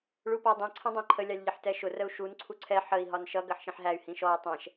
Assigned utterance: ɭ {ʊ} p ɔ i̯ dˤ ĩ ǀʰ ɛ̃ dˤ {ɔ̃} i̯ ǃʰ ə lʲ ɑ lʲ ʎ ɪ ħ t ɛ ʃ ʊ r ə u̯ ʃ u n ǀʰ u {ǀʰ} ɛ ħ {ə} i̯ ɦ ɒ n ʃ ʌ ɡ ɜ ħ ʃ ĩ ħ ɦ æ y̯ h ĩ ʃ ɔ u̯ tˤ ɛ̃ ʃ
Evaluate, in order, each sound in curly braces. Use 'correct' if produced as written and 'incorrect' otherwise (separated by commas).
incorrect, incorrect, correct, correct